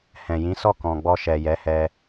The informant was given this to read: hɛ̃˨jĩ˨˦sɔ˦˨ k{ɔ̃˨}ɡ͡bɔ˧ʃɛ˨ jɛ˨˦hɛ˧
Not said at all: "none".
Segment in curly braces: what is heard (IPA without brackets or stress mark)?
ɔ̃˨